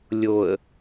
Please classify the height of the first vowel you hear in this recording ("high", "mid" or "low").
mid